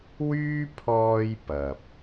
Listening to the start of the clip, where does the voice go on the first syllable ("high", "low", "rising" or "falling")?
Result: high